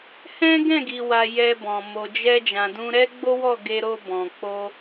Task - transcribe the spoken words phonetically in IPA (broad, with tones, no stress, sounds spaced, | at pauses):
h ɛ̃˦ ɡ ɛ̃˦˨ ɡ i˨ w a˨ j ɛ˧ b ɔ̃˨ m o˨ d͡ʒ ɛ˧ d͡ʒ ã˨ d ũ˧ ɾ ɛ˦ ɡ͡b o˦ w ɔ˦˨ ɡ e˧ ɾ o˧ b ɔ̃˨ k͡p o˧